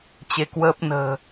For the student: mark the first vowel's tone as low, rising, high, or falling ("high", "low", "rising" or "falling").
rising